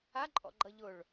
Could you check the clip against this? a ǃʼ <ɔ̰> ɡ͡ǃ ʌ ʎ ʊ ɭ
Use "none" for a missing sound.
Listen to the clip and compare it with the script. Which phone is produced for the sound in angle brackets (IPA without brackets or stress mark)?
ɔ̰